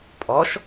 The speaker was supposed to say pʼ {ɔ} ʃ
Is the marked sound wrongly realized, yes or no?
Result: no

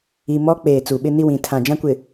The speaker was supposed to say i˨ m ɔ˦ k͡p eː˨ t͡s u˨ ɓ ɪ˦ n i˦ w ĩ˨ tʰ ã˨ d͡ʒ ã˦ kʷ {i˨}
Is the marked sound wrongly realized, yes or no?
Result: yes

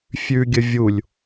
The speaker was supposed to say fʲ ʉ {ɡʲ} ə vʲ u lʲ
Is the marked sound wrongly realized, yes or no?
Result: no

